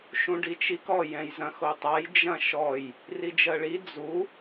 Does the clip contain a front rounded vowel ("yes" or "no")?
no